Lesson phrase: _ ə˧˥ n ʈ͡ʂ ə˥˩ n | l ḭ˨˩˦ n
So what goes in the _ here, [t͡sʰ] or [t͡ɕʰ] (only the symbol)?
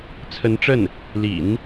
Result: t͡sʰ